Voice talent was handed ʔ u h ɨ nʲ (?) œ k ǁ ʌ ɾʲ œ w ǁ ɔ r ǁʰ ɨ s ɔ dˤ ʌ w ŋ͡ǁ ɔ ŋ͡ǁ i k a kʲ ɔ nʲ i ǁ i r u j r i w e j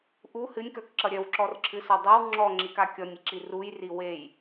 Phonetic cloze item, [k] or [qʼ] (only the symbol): k